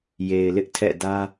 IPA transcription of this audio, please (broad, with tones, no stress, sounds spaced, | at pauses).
j e˨ ɪ̯ l ɪ˦ ʔ tʰ ɛ̰˦˨ d ä˦